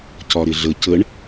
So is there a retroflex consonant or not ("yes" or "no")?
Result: yes